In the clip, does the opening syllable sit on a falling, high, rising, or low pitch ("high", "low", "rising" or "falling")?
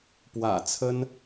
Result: low